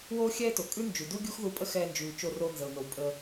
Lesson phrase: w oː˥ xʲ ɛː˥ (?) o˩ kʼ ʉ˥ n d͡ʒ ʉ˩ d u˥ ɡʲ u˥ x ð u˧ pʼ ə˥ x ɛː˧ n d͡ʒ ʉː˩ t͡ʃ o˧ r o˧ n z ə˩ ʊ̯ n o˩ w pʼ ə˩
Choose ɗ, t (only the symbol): t